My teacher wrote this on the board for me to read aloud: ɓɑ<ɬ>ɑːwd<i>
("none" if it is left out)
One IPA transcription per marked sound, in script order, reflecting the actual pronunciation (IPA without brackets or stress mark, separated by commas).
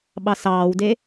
s, e